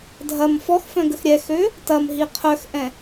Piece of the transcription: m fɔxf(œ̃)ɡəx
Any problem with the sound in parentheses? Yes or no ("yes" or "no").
no